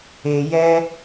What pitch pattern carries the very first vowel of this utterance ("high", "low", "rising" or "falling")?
low